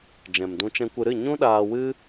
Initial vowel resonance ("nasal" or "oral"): nasal